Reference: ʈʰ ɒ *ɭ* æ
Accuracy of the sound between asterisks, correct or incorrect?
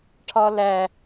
incorrect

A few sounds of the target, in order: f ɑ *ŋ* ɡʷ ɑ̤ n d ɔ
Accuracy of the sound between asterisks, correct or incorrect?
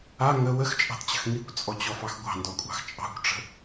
incorrect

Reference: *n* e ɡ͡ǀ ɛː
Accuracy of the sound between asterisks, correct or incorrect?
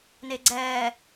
correct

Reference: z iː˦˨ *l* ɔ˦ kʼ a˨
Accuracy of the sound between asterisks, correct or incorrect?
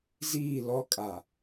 correct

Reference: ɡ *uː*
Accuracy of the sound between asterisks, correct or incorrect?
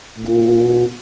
correct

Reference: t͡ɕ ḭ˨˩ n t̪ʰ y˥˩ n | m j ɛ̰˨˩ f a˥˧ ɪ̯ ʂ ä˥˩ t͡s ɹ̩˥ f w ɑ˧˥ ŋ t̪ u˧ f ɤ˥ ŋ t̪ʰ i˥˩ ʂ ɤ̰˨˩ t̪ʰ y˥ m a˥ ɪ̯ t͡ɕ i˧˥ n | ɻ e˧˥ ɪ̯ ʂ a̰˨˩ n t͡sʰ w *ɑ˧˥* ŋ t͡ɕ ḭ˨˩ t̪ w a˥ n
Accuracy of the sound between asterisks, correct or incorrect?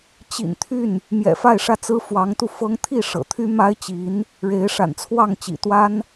incorrect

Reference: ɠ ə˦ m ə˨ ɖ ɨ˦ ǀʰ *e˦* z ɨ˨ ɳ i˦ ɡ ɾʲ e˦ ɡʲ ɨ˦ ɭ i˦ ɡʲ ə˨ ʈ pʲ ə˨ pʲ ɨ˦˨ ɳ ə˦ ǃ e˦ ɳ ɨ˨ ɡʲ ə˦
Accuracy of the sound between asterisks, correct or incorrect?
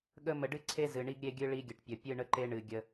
correct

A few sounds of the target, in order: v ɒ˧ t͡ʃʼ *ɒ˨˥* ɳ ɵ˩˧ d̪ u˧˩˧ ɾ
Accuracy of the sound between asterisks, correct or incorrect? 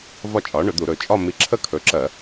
incorrect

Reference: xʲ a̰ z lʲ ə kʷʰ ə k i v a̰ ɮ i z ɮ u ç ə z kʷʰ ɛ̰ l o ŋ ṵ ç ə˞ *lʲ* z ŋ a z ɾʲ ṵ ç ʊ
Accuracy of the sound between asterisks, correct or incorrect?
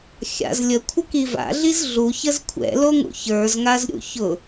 incorrect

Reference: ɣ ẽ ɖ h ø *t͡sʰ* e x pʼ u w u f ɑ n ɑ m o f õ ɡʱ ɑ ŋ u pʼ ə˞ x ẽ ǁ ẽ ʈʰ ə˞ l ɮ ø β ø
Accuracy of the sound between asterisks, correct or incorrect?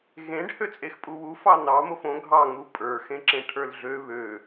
incorrect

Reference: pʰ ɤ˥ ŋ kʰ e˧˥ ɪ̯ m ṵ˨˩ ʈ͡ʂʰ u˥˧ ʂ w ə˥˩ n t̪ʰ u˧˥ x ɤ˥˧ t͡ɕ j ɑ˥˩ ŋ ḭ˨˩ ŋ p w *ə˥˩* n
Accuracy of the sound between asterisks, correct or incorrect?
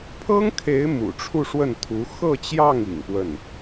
correct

